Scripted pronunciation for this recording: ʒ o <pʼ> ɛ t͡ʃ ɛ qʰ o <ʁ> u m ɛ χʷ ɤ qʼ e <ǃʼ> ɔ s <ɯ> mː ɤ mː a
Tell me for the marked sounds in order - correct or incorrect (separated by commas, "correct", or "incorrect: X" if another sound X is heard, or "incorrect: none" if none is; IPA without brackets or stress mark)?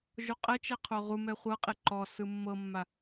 incorrect: qʼ, correct, incorrect: ǃ, correct